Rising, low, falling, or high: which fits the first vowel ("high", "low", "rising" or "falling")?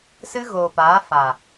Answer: high